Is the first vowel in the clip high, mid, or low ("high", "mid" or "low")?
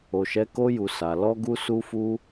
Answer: mid